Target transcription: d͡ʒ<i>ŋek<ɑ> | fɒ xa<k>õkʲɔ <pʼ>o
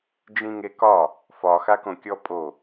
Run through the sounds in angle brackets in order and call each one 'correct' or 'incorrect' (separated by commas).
incorrect, incorrect, correct, correct